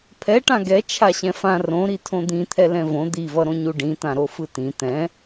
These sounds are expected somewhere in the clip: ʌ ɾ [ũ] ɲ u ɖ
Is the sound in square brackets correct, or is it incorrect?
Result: incorrect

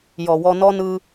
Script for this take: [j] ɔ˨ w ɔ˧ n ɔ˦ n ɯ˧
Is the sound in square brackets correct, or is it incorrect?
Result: correct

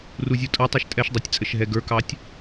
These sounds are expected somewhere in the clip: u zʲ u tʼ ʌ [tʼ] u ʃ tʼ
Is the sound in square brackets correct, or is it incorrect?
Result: incorrect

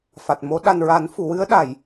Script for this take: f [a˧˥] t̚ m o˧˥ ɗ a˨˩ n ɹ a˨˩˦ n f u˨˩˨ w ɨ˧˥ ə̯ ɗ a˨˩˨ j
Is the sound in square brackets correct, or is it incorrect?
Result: incorrect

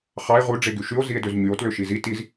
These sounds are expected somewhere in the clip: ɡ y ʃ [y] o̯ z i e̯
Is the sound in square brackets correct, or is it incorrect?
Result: correct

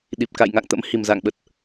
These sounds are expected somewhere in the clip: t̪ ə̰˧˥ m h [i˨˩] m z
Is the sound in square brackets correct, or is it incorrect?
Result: correct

